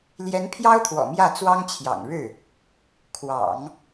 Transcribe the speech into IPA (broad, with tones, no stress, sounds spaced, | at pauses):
l j ɛ˧˥ n pʰ j ɑ˥ ʊ̯ t̪ʰ w ɔ̰˨˩ m j ä˥˩ t͡s w ɑ˥ ŋ t͡ɕʰ j ɑ̰˨˩ ŋ ɻ ɻ̩˥˩ | kʰ w ɑ̰˨˩˦ ŋ